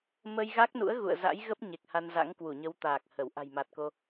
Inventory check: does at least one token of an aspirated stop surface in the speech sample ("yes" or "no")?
no